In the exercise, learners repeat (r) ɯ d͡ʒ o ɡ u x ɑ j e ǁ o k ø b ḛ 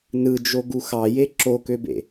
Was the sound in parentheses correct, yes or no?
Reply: no